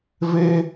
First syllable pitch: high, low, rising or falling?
high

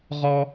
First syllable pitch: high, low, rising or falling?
high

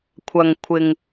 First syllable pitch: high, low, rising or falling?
low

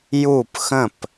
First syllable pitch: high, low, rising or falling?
falling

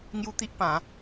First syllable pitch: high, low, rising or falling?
high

